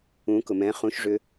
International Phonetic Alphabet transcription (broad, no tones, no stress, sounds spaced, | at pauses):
ũ k ʊ m ɛ̃ χ ũ ʃ ʐ ʏ